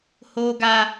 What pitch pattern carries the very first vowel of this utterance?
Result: high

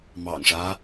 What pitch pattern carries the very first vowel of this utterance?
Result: low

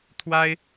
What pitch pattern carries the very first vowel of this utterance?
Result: high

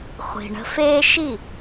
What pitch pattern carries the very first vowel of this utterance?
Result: low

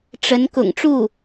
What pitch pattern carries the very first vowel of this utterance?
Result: rising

